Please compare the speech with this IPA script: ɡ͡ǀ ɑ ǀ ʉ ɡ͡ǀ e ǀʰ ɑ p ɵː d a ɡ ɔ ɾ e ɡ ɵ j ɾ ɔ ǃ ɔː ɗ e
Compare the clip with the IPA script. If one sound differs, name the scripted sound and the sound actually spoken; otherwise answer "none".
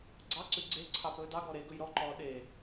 a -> ɑ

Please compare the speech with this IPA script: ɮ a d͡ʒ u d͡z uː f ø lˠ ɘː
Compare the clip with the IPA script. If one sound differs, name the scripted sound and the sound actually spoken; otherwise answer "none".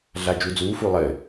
ø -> u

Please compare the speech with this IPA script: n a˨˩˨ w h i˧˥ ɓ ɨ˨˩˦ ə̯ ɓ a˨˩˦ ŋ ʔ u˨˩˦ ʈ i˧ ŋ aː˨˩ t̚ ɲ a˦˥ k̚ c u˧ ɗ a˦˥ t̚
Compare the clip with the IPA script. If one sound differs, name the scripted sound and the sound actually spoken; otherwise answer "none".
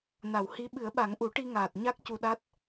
none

